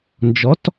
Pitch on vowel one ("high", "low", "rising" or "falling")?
rising